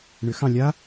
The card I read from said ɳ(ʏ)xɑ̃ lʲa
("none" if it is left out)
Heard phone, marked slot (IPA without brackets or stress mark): ʏ